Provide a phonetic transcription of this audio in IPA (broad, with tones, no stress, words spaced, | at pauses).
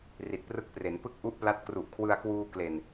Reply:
ri˨˩t̚prɯ˥˩k̚pre˩˦n pɯ˥˩k̚ʔu˥˩ʔpla˦˥t̚ kru˨˩ʔkʰwɯ˧a̯kwuː˧ kle˨˩n